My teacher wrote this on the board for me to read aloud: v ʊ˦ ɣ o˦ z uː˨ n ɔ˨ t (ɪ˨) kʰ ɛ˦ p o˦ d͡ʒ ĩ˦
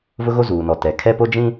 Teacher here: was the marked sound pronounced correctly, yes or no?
no